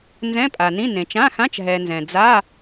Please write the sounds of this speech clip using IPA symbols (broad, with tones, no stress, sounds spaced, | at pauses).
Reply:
n z ɛ̃˧˥˧ pʼ a˩ n ĩ˧˥˧ n ẽ˩ t͡ʃ ã˧˥˧ x ã˧˥˧ t͡ʃ ɦ ɛ˩ n z ɛ̃˩ d͡z a˧˥˧